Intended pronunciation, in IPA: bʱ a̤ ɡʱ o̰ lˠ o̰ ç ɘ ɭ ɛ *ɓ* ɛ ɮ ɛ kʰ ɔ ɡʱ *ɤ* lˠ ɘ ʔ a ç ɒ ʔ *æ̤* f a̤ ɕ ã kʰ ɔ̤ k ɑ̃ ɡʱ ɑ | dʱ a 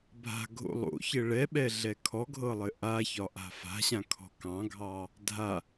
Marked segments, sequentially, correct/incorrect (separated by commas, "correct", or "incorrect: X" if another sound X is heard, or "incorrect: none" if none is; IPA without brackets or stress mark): correct, correct, incorrect: a̤